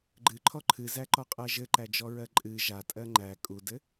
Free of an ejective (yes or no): no